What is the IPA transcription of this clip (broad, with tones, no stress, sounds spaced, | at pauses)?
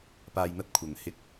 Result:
p aː˧ j n̪ ɐ˥ t̚ kʷʰ ɐ˨˩ n h ɪ˧ k̚